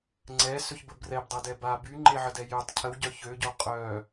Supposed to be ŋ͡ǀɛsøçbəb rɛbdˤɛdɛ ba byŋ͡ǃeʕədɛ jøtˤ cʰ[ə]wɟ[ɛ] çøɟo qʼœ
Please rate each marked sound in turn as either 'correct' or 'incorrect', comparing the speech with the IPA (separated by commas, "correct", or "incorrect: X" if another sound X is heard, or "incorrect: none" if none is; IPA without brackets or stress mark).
correct, incorrect: œ